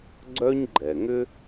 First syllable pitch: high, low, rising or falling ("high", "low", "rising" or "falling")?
high